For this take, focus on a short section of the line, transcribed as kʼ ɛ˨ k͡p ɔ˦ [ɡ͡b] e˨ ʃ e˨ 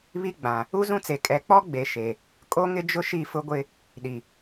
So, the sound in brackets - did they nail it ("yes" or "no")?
yes